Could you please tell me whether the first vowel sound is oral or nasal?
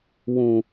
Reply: nasal